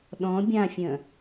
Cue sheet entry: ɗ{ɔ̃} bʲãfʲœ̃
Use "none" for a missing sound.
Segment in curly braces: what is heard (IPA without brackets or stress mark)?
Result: ɔ̃